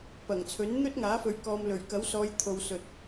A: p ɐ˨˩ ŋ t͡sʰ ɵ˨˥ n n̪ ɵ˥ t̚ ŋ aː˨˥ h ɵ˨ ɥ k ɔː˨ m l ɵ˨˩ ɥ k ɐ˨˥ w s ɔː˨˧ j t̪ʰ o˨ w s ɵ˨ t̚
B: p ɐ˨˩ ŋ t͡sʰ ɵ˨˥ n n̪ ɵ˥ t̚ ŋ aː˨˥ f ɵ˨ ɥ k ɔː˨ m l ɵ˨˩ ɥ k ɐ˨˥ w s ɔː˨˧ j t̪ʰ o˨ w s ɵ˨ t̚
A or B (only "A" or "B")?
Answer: B